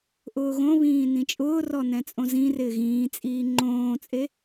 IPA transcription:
ʔʊːɣõβĩː nĩt͡ʃʼʊːrɔ nɛ̃t͡sʼõzĩrɪː ɣĩːt͡sʼiː ŋ͡ǃõːt͡sʼe

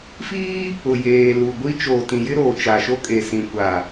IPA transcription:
fiː˦ | ʊ˨jeː˨ lu˨ɡʷi˦ t͡ʃoː˨tĩ˨jɪ˦ ɾoː˨t͡ʃa˨ʃo˦ kʼe˨sĩ˨kʷa˨

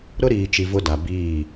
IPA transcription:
ɾʊ˦ɾiː˨t͡ʃi˨ vʊ˦da˨ biː˦˨

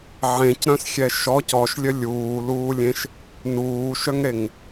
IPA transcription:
ʕẽcɾœ̃sxʲɛ ʃɔc ɔʃlʲœ lʲuːluːlʲẽʃ | nuːʃœŋɾeŋ

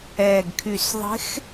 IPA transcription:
ɛː˨˩ɡkʰy˨˩s ðˤe̤˧˥x

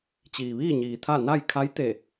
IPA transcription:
t͡ɕiː˩ʋiː˥˨ɲiː˩ t̪ʰa˥˨ na˥˨j kʰa˧˥jt̪e˧˩

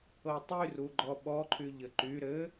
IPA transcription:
ɤtˤyruɡ͡ǃɔ ɓɔǃʰyʎɘ ǃy ɾɘ

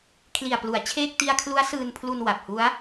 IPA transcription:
kʰli˨˩a̯plu˩˦a̯ t͡ɕʰeː˥˩k̚ ti˧a̯kʰlu˦˥a̯ sɯː˧npʰlu˧n wa˨˩p̚hu˦˥a̯

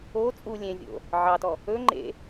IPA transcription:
o t͡sʼu lʲẽvʲo̰ | ʕɑtɔ | ɵ ŋ͡ǃḛ

